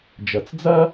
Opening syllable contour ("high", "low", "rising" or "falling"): low